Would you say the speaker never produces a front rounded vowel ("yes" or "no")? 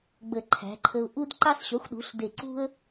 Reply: yes